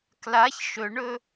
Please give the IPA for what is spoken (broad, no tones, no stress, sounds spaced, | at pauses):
k l a ç ʃ ɵ ɳ ɵ